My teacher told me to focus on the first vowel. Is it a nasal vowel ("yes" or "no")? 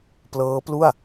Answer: no